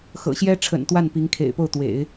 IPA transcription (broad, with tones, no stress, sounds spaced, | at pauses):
x ɤ̰˨˩ ɕ j ɛ˥ ʈ͡ʂʰ ə̰˨˩ n t̪ w a˥˩ n p i˧˥ ŋ kʰ ḛ˨˩ ɪ̯ p o˥˩ ʊ̯ t̪ w ḛ˨˩˦ ɪ̯